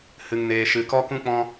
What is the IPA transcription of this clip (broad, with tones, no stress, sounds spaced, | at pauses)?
h ɨ˧ ŋ n eː˧ ʃ ɨ˧ k ɔ˦ k ũ˦ k͡p ɔ̃˦